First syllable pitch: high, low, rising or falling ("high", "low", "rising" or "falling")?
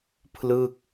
falling